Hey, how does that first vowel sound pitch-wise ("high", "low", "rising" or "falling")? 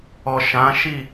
low